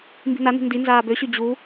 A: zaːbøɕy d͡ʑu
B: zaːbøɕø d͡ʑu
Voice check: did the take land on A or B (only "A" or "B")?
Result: A